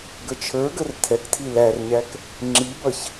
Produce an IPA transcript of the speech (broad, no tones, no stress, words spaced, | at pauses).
ɡət͡ʃʰə˞ɡər tʰɛktʰi lærɲæk | ŋ͡ǁibʌç